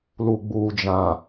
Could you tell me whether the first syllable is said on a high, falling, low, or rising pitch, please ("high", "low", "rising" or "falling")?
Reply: low